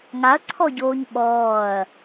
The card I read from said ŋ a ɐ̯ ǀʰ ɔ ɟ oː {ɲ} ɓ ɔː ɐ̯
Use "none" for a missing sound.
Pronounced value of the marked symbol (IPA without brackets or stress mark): ɲ